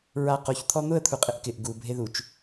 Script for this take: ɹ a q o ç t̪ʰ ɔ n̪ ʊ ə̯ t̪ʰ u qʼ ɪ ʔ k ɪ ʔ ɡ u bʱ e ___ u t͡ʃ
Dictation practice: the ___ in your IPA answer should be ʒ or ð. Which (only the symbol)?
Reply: ð